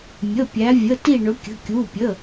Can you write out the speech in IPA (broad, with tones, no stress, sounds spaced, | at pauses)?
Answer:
mʲ ə˩˧˩ pʲ æ˩˧ vʲ ə˩˧˩ t i˧˩ ɳ ɵ˩˧ kʲ ə̤˩˧˩ kʲ u˩˧˩ pʲ ə˩˧˩